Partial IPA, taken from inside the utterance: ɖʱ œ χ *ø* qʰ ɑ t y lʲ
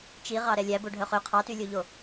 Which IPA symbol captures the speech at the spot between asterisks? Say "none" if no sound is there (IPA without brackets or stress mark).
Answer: ø